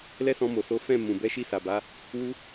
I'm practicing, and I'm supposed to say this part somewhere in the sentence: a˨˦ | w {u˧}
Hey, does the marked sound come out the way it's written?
no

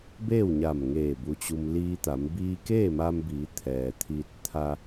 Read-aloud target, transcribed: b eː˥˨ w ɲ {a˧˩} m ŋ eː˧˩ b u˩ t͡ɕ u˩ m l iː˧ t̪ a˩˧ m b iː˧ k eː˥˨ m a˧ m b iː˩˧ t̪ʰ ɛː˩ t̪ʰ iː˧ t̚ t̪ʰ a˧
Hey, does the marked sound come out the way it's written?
yes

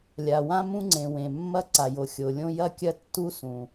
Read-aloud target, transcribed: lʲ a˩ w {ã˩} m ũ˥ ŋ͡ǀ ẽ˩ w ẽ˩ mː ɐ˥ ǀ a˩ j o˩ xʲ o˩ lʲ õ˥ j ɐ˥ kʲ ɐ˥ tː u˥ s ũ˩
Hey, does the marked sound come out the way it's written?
no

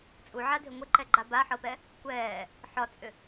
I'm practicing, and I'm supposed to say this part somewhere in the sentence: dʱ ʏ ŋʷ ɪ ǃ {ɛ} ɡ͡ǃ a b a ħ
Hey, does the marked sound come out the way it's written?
yes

